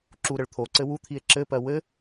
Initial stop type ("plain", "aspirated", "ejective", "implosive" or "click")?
click